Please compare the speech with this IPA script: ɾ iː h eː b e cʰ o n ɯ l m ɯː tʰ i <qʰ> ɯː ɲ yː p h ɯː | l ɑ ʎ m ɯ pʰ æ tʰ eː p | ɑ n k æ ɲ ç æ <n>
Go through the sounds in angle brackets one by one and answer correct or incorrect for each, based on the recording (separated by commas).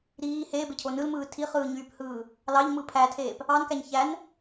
incorrect, correct